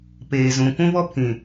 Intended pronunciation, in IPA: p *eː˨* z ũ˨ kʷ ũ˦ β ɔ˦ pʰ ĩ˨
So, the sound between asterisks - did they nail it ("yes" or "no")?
yes